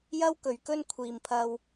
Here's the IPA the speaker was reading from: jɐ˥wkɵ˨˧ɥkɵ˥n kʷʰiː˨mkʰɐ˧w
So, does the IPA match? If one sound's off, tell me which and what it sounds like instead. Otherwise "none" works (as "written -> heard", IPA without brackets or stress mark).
kʰ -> pʰ